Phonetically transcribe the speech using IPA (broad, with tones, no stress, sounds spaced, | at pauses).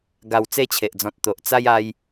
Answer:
ɡ a˨˩ w t͡s e˧ t͡ɕʰ e˨ ʔ d͡z ɔ̃˨ t̚ t̪ o˨ ʔ t͡s a˦ j a˦ j